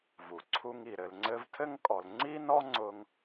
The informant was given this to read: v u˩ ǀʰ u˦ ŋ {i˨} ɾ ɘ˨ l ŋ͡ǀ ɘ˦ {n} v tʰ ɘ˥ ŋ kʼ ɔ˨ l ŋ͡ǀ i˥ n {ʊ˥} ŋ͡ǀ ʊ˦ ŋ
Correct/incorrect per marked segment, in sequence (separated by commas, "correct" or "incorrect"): incorrect, incorrect, incorrect